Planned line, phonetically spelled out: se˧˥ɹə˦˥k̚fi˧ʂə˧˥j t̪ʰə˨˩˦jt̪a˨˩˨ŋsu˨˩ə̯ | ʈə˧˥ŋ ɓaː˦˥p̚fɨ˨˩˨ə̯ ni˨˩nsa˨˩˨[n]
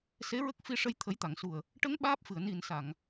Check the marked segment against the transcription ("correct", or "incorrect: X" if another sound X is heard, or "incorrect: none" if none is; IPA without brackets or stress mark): incorrect: ŋ